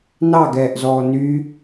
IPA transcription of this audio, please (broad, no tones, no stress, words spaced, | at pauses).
nɑɡɛːʔzɔː ny